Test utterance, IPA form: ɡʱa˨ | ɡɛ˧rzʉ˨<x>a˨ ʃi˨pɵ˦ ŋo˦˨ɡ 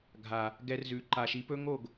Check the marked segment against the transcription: incorrect: ǃ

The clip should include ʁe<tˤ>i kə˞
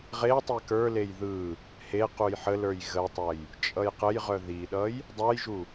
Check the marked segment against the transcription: correct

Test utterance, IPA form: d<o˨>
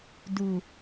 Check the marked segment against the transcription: incorrect: u˨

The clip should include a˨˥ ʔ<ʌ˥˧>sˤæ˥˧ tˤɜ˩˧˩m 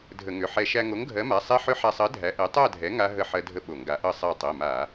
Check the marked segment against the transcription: correct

